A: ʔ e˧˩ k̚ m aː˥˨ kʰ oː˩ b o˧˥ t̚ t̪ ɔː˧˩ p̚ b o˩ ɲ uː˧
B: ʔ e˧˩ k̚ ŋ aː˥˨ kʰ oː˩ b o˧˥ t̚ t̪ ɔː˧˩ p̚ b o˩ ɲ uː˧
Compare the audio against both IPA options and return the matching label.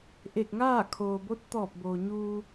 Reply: B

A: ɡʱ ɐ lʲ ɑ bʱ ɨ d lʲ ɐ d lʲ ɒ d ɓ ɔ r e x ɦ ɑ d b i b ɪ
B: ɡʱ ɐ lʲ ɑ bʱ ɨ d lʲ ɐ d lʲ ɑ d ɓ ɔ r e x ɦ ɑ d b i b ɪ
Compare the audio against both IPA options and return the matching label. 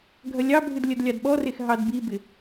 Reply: B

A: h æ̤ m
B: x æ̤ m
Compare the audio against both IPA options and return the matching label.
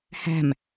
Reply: A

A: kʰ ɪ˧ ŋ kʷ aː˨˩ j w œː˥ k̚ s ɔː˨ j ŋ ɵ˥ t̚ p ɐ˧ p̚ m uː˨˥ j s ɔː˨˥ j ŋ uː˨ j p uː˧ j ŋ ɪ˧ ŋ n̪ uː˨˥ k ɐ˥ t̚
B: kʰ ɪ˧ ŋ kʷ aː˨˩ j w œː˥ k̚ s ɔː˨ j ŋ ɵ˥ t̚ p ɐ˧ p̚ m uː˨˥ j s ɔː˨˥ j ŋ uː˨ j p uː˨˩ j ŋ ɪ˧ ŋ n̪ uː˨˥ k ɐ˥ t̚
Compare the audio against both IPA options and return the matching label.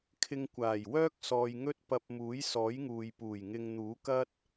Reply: B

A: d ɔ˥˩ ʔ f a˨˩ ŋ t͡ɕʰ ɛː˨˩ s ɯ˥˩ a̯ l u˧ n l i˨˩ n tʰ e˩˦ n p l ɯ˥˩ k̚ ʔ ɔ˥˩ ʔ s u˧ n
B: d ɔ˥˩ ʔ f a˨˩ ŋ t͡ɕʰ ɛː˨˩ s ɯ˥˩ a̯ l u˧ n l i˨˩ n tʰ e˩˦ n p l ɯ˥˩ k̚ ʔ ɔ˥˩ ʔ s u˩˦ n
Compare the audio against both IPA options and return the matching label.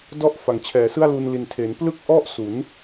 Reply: B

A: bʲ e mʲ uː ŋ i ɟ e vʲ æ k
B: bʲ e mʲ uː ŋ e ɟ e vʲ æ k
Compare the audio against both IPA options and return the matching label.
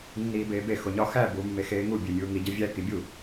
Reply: A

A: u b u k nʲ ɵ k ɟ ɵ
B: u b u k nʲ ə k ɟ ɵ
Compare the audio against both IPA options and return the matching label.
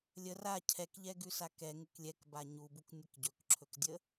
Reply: B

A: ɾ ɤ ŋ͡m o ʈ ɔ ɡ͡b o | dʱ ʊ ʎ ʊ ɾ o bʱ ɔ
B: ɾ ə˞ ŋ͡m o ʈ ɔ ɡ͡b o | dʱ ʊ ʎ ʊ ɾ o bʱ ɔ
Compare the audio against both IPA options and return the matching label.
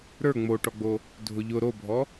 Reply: B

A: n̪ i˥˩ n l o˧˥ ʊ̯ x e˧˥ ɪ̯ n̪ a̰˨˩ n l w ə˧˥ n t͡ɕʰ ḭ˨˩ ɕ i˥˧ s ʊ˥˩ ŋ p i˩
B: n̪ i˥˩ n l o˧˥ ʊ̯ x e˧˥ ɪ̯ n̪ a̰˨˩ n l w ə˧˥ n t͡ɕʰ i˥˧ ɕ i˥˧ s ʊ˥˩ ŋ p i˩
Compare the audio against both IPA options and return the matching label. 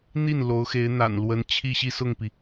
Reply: B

